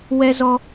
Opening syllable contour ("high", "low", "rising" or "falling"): high